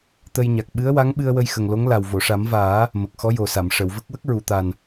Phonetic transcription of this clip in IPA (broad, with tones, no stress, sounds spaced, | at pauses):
t̪ ə˧ j ɲ a˨˩ k̚ ɓ ɨ˧˥ ə̯ w a˧˥ ŋ ɓ ɨ˧ ə̯ w ə˧ j x ə˨˩ ŋ l o˧˥ ŋ l a˨˩ w v o˨˩˨ ʂ a˨˩˦ m v aː˨˩˦ | m ə˨˩ k̚ x ɔ˧˥ j o˨˩ s a˨˩˨ m ʂ ə˨˩˨ w v ə˦˥ k̚ w ə˦˥ k̚ ɹ u˨˩˨ t̪ a˨˩ n